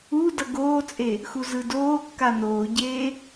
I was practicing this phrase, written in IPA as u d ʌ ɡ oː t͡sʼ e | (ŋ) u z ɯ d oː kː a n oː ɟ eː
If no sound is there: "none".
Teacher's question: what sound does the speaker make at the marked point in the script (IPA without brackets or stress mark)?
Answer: x